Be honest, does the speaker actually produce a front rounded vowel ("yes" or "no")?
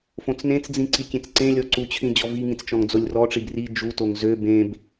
yes